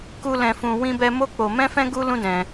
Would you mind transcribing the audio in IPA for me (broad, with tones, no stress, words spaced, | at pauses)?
ku˧ lɛ̃˧fũ˧ wĩ˦bɛ˦ mo˦k͡po˧mɛ̃˦fɛ̃˦ ɡu˦lũ˦dɛ̃˧